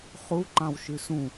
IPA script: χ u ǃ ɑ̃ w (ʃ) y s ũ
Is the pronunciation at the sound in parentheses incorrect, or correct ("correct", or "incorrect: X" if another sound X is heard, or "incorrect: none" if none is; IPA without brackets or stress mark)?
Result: correct